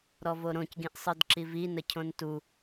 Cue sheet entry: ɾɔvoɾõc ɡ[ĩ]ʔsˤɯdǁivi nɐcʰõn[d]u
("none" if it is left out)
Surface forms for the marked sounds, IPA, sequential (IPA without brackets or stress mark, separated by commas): ĩ, t